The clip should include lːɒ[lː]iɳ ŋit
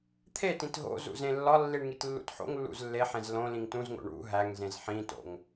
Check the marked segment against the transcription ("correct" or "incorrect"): correct